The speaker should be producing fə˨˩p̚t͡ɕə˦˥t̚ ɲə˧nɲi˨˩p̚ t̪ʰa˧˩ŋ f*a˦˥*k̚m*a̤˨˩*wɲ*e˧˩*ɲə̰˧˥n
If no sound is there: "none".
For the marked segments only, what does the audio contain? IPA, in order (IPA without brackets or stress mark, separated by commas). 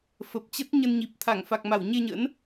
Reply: a˨˩, a˧˩, e˧